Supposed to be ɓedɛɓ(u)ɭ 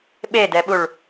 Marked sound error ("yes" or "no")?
no